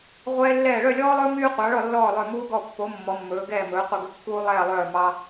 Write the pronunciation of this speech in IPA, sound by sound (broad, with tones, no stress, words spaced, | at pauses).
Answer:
ʁʷɛː˦lːɛː˦˨ ɭœ˦˨lʲɔː˦lˠɵː˦ myː˦qʷɑ˨˦ ɭɔ˦˨lːɔː˦˨lˠœ˦˨ muː˦ɡɔ˦˨ pːo˨˦ mːɔ˨˦mːɵː˨˦ɡɛː˦˨mɵː˨˦ qʷɛ˦˨ɡɵ˦kːuː˦ lˠɛː˦˨lˠœː˦˨ mɑ˦